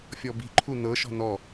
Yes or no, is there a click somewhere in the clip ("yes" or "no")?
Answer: yes